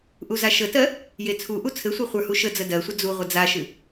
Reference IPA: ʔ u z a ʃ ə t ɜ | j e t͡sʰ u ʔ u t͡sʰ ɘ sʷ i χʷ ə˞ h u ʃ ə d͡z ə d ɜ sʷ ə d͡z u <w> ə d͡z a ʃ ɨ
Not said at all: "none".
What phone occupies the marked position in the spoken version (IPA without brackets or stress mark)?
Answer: ʁʷ